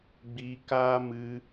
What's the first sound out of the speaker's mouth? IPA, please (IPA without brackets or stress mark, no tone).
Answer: ɡ͡b